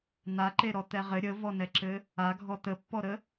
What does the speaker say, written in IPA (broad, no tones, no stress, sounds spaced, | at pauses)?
n̪ a ǃ e ɾ ɔ t̪ ɛ ʁ ɘ ɾʲ ə v ɔ n ɛ ǁ ɘ | a ɡʱ ɔ t̪ ə pː ɔ ɾ ə